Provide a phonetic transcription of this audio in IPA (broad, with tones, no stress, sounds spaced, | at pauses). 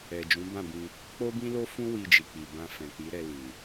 ɛ˨ d͡ʒ ũ˨˦ b ã˦˨ b ĩ˧ | k͡p o˦ b ĩ˦ l o˦ f ũ˦ w i˧ d͡ʒ i˨ k͡p i˨ b ã˧ f ɛ̃˨ k͡p i˨˦ ɾ ɛ˧ l ĩ˨